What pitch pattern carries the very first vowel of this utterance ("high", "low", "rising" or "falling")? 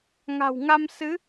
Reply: low